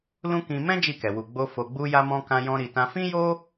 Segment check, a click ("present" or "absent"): absent